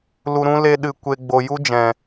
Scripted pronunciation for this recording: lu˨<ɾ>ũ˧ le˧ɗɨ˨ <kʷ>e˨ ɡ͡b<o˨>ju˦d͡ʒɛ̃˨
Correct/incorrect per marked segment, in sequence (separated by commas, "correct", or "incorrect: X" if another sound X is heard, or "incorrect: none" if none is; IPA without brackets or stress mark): correct, correct, correct